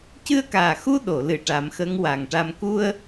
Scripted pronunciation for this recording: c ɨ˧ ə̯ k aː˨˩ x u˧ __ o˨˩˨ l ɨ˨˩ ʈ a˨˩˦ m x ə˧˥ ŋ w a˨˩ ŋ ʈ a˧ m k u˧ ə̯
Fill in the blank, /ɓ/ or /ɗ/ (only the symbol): ɗ